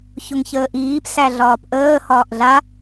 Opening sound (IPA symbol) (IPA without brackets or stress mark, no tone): ç